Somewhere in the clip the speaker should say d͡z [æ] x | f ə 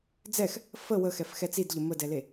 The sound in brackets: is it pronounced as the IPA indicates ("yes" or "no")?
no